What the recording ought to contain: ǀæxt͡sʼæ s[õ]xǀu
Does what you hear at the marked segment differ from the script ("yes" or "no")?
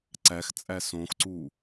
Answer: no